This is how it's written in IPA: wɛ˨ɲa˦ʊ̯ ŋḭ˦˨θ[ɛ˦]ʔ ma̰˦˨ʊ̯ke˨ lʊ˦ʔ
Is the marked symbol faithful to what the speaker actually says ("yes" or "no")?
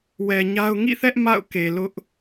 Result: yes